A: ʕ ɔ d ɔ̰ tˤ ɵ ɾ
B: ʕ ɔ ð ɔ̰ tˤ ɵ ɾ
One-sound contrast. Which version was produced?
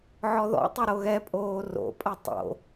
B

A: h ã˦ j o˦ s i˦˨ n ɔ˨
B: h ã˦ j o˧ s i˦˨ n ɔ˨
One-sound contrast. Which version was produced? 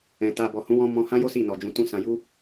A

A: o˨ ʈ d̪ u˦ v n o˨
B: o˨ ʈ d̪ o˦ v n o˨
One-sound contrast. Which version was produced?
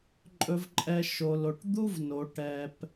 A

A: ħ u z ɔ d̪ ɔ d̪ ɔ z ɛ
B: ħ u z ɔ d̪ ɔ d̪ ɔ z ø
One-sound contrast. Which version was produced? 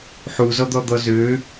B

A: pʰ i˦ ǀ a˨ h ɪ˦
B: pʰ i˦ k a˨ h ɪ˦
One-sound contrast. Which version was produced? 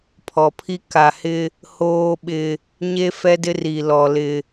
B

